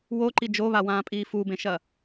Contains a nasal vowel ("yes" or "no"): yes